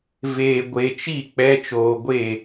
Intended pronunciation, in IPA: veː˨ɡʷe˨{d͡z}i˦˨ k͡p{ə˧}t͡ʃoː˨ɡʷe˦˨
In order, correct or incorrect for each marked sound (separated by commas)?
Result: incorrect, incorrect